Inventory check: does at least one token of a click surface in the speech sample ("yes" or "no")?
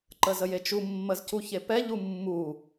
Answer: yes